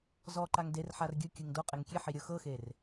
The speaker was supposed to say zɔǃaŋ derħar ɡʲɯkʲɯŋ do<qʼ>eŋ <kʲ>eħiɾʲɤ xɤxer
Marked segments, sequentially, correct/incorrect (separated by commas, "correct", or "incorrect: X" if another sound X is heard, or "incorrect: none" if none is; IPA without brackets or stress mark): correct, correct